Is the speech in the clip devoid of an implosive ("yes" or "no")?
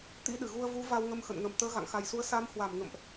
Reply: no